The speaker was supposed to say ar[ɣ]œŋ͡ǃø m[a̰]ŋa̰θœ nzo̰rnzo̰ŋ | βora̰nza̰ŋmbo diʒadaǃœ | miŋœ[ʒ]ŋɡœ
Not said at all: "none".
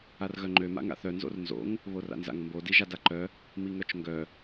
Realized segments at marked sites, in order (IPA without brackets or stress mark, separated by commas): ɣ, a̰, t͡ʃ